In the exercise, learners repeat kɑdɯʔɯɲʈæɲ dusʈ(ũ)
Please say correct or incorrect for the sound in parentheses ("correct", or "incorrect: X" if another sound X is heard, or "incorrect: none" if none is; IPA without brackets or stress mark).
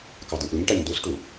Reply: incorrect: u